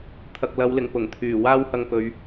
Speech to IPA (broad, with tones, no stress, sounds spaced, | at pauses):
t̪ʰ ɐ˨ k̚ l ɐ˨˧ w l ɪ˨˩ ŋ p ʊ˨˩ ŋ t̪ʰ yː˨˩ w aː˥ w h ɐ˧ ŋ p ɵ˨˧ ɥ